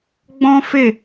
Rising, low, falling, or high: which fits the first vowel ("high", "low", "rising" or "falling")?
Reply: high